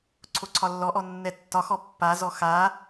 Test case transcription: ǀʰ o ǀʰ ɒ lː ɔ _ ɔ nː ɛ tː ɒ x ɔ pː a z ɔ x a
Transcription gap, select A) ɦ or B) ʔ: B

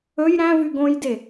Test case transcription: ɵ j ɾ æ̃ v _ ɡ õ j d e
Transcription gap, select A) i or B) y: B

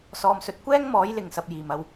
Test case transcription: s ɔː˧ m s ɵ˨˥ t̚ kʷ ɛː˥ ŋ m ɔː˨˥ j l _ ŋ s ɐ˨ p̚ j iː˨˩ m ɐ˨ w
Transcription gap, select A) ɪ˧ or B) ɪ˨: B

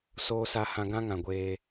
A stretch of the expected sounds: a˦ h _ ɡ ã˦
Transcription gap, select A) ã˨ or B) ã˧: B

